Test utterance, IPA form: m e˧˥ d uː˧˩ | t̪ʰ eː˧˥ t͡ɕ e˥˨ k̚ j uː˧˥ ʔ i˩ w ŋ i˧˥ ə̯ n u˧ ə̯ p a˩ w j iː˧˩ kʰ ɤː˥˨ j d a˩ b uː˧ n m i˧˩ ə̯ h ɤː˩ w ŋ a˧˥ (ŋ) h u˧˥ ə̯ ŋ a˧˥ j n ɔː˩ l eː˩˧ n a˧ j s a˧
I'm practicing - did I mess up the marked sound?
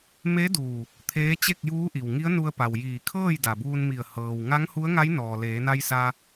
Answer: no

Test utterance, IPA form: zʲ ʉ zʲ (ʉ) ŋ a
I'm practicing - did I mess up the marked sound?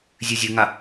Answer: no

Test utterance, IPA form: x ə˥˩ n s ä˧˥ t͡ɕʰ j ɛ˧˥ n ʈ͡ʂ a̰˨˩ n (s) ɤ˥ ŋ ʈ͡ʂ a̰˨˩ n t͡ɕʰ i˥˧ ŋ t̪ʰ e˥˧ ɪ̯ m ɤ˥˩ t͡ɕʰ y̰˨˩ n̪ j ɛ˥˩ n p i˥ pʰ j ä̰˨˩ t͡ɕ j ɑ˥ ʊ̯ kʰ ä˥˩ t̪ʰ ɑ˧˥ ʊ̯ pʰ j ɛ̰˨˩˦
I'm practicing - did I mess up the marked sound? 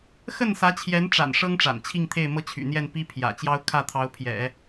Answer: yes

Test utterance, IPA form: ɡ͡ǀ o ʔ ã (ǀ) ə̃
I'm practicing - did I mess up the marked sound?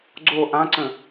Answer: no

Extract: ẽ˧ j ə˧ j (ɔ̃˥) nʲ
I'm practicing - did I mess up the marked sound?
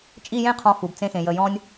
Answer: no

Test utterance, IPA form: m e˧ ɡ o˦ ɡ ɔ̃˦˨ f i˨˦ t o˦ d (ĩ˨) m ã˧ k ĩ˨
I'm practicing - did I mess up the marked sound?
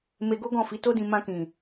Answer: yes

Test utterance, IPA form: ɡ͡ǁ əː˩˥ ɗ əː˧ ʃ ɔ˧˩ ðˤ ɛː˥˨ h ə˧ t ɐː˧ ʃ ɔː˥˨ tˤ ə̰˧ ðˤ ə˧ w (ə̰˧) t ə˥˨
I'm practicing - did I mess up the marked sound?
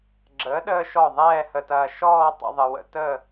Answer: no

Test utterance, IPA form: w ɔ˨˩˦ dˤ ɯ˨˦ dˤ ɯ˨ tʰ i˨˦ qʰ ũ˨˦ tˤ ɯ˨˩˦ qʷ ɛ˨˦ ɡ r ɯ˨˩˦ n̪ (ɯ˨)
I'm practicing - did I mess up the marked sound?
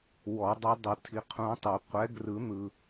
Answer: no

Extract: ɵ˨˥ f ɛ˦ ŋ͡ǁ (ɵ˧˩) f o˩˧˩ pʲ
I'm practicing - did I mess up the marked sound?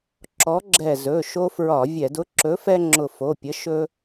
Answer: yes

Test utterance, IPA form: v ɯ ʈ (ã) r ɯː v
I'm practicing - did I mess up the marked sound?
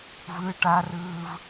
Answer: yes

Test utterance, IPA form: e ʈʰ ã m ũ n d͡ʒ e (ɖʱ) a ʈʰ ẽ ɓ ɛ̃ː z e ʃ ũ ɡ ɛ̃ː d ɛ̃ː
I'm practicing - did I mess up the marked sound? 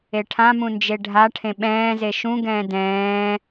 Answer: no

